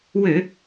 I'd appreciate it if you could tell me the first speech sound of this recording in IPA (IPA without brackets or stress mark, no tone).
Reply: w